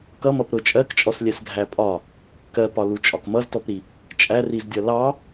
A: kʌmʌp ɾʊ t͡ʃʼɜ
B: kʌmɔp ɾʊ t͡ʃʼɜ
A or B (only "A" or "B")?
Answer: A